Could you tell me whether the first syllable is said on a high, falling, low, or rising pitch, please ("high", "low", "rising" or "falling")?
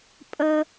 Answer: high